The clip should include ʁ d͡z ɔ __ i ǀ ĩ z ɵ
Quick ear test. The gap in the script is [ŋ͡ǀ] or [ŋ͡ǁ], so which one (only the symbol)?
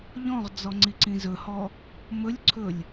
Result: ŋ͡ǀ